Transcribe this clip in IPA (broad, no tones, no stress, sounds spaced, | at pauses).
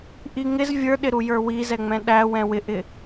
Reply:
ʔ i ŋ ɪ z vʲ ə˞ ɗ ɪ ɾ u j ə˞ w i z ɛ ŋ͡m ɛ̃ ɗ æ w ɛ̃ w ɪ ʔ ɪ